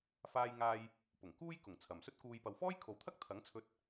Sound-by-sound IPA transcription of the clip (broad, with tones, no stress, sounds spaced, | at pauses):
f aː˧ j ŋ aː˧ j | p ʊ˨˩ ŋ k uː˥ j k ʊ˨˩ ŋ t͡sʰ ɐ˨ m s ɵ˥ t̚ k uː˧ j p ɐ˨ w f ɔː˥ j kʰ o˨ w t̪ʰ ɐ˥ k̚ t̪ʰ ɐ˨˥ ŋ t͡sʰ ɵ˧ t̚